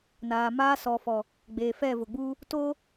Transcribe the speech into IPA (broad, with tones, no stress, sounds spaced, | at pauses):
n aː˨ m aː˦ s ɔ˨ f ɔ˨ | ɡ͡b eː˨ f ɛ˦˨ v ʊ˨ ɡ͡b uː˦ | t oː˦